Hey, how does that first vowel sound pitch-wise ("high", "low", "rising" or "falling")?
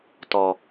low